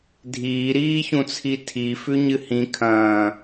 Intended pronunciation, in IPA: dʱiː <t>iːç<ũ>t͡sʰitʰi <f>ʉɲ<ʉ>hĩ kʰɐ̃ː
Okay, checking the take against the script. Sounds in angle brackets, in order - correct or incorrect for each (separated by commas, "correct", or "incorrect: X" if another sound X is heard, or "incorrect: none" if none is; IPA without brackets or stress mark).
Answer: incorrect: ɾ, correct, correct, incorrect: ɨ